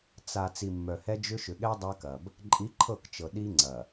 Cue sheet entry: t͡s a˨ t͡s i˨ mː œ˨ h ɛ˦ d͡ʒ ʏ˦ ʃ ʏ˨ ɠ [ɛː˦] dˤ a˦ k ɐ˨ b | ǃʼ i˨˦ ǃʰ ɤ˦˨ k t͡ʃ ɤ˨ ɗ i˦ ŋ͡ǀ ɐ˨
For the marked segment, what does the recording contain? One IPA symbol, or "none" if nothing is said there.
ɛ˦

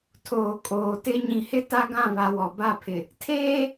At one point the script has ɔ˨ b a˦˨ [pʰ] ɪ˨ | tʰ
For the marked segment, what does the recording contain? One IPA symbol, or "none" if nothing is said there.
pʰ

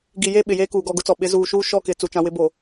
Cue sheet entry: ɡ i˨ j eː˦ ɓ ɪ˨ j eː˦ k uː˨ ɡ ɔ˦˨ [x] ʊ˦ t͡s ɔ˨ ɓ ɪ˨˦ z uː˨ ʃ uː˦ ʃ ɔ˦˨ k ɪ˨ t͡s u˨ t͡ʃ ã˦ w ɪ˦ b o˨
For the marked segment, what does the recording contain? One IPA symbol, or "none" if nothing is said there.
ɡ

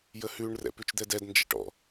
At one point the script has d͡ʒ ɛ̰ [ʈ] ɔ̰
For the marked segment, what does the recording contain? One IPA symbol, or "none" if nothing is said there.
ʈ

